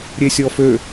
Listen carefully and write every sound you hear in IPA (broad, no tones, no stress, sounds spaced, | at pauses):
ɾʲ e sʲ ɔ f ø